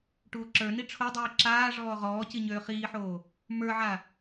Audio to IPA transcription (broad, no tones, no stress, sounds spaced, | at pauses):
ʈ uː ǁ ə˞ n i ʈ͡ʂʰ o dˤ iː ǁ aː ʐ ɔː ʁ ɔː c i ɲ øː χ iː ħ oː | m ə˞ ʕ a